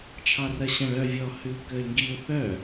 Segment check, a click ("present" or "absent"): absent